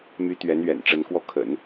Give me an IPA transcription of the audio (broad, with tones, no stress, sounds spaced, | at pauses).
m y˧˥ t̪ ɥ ɛ˧˥ n ɥ ɛ̰˨˩ n ʈ͡ʂ ə˧˥ n k w ɔ˥˩ kʰ ə̰˨˩˦ n